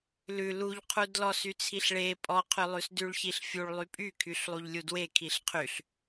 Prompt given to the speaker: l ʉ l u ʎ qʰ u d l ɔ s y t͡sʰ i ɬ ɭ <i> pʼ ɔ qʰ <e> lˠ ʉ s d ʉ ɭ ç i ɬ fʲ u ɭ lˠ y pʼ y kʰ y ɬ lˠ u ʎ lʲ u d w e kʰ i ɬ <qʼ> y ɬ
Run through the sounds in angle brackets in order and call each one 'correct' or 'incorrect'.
incorrect, incorrect, incorrect

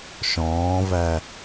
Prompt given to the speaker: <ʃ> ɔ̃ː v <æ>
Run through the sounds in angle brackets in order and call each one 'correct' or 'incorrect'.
correct, correct

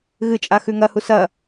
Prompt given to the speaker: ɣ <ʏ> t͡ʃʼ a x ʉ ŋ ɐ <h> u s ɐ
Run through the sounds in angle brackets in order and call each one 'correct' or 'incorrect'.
incorrect, correct

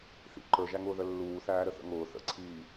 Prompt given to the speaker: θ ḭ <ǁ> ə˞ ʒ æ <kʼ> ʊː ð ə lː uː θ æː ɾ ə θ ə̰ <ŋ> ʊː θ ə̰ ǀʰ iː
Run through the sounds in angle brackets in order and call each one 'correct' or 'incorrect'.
incorrect, incorrect, correct

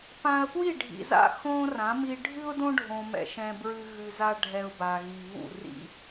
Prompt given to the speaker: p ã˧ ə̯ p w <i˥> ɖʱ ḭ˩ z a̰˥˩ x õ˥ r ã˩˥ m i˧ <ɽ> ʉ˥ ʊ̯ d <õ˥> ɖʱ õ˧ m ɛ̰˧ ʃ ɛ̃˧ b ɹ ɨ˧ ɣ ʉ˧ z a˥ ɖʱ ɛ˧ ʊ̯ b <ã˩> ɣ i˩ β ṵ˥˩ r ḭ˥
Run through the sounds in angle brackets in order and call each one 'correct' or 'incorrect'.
incorrect, incorrect, correct, incorrect

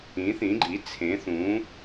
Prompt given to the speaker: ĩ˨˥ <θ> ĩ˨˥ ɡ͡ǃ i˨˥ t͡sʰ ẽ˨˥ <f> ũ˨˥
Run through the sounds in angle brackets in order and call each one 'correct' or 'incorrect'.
correct, incorrect

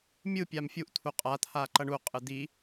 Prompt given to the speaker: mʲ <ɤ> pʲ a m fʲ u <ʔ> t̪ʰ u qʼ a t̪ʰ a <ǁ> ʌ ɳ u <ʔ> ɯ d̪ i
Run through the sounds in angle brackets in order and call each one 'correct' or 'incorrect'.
incorrect, correct, incorrect, incorrect

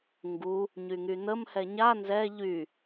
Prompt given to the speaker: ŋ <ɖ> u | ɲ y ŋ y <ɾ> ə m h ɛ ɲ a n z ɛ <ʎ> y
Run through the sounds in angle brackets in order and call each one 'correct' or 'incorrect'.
incorrect, incorrect, correct

